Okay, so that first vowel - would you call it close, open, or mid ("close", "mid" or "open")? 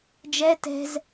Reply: mid